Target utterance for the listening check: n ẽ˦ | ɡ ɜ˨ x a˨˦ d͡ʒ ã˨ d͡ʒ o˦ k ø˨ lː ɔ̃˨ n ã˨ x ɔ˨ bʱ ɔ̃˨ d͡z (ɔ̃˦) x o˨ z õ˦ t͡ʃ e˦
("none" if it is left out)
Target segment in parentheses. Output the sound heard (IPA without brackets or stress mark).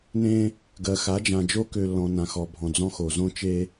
ɔ̃˦